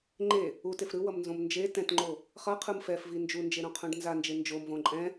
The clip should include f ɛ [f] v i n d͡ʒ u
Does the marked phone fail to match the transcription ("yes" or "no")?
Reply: no